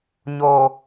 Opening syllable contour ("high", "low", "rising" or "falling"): low